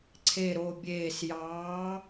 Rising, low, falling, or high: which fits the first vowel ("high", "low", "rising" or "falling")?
low